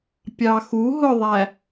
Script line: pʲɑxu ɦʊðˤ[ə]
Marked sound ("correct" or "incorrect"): incorrect